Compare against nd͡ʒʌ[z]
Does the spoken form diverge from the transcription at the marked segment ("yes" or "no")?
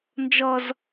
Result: no